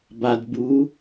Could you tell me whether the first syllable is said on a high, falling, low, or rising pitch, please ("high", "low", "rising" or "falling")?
low